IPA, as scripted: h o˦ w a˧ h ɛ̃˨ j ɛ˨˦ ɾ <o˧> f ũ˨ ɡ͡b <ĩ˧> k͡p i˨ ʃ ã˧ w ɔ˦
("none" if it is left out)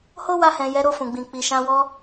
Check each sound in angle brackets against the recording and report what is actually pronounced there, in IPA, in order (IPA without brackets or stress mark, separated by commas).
o˧, ĩ˨